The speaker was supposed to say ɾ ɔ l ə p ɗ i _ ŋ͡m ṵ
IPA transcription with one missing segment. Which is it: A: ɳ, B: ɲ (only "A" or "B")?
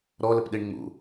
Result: A